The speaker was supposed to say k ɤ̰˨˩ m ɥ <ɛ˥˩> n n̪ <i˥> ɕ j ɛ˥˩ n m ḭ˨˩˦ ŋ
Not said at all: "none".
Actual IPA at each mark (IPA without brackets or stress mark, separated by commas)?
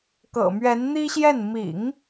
ɛ˧˥, i˥